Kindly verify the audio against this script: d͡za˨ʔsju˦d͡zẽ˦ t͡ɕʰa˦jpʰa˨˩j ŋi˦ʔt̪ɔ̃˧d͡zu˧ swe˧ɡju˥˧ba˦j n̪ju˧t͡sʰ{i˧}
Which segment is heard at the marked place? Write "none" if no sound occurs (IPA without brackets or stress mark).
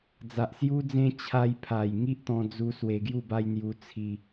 i˧